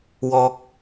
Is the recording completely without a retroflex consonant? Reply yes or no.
yes